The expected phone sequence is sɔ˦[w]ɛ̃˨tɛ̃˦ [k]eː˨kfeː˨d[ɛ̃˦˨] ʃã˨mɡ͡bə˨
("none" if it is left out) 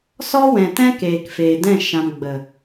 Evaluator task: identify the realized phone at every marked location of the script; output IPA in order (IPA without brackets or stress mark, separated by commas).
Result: w, k, ɛ̃˦˨